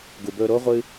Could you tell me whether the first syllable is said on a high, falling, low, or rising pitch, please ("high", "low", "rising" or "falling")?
low